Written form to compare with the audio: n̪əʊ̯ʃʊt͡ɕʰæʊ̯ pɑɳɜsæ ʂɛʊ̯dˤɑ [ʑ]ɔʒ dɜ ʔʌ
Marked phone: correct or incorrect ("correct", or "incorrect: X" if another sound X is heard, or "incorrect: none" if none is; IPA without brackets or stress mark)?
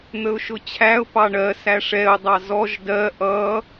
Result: incorrect: z